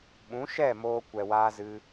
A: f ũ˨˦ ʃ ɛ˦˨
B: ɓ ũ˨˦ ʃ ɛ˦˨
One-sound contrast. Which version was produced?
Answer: B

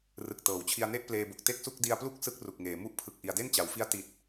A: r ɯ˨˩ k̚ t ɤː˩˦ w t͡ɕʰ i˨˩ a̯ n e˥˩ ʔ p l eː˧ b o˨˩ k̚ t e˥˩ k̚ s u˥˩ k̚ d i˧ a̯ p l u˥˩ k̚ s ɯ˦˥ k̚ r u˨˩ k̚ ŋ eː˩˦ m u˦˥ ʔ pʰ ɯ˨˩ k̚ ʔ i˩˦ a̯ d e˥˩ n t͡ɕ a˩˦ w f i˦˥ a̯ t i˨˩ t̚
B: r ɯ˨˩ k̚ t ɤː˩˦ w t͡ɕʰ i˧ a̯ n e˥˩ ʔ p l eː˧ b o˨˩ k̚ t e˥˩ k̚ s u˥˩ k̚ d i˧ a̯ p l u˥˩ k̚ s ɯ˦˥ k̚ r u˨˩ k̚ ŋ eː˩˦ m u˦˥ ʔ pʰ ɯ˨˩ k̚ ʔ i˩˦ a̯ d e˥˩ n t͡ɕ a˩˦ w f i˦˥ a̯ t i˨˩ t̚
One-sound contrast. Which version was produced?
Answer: B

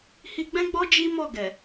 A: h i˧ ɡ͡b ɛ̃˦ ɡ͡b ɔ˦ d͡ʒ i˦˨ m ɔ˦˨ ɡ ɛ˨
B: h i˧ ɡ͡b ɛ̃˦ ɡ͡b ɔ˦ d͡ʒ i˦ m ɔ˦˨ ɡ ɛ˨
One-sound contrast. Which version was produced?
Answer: B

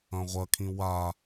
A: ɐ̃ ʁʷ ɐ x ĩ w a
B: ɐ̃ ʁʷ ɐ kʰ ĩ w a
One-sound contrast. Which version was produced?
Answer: B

